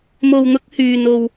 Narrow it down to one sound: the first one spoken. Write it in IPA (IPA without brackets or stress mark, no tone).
m